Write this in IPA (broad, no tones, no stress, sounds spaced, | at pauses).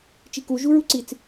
t͡ʃ i k u ʒ u ɹ u ǀ i t͡s